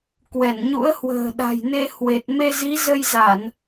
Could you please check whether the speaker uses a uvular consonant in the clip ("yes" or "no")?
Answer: no